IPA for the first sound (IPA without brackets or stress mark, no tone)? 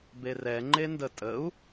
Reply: b